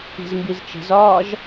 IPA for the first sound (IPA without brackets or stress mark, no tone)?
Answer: i̤